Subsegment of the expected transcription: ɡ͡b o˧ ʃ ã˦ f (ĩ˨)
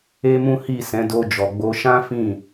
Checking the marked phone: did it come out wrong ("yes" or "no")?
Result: yes